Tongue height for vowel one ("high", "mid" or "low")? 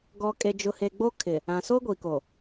mid